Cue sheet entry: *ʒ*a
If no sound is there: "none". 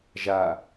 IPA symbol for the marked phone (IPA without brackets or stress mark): ʒ